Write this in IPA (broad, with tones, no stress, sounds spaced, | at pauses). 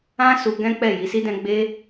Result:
ã˦ s u˧ ɡ ɛ̃˦ k͡p ɛ˦˨ j i˨˦ s i˦ d ɛ̃˦ ɡ͡b e˦